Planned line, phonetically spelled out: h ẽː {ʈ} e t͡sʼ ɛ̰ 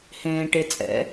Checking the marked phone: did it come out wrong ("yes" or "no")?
no